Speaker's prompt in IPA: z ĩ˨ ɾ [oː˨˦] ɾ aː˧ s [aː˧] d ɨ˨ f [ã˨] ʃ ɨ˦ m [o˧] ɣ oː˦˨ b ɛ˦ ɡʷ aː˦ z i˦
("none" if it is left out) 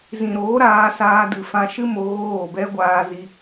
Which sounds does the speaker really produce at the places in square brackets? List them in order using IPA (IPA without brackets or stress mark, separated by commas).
oː˨˦, aː˧, ã˧, o˧